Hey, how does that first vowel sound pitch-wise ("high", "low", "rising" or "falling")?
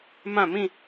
falling